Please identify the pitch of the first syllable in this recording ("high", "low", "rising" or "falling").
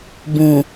low